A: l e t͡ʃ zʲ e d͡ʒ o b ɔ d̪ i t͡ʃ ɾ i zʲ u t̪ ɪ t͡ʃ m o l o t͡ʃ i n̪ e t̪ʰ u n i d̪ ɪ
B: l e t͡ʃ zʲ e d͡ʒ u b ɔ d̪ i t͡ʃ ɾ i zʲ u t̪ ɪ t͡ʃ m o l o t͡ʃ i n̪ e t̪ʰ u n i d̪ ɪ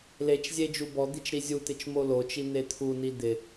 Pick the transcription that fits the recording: B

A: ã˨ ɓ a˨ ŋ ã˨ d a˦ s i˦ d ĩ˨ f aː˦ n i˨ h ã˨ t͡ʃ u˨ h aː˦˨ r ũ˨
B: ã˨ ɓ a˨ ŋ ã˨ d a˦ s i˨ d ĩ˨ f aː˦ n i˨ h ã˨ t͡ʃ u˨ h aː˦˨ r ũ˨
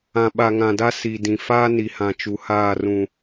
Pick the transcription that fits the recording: B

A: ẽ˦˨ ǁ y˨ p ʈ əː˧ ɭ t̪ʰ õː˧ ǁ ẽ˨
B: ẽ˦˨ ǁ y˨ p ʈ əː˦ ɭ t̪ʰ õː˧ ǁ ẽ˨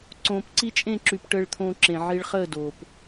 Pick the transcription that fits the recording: A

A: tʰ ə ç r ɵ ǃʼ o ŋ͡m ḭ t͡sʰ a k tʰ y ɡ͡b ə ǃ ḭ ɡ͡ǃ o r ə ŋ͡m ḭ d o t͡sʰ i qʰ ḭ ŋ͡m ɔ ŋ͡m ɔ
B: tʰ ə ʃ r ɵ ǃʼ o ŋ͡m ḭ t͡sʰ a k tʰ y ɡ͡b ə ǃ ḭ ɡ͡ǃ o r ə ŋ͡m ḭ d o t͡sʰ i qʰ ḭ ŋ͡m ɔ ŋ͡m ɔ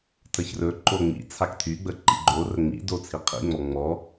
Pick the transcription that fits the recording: A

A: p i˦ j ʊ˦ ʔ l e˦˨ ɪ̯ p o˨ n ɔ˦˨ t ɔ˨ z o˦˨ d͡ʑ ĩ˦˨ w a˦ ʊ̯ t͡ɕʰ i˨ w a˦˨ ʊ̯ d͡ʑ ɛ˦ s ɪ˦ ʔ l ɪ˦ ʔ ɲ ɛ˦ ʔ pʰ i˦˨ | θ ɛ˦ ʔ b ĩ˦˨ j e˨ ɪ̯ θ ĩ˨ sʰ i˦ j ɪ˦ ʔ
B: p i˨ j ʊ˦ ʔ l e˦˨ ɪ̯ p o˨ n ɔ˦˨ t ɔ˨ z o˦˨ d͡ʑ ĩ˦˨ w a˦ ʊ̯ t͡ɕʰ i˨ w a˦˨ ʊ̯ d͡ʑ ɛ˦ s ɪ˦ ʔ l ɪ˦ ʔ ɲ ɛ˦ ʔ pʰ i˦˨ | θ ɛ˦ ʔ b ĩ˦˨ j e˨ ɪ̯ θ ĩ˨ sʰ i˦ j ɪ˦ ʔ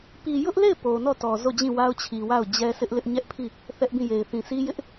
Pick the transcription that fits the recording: B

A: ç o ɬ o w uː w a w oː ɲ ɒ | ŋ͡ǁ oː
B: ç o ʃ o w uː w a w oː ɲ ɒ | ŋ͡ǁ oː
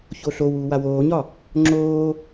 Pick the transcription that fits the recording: A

